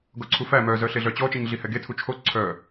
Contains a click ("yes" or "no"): yes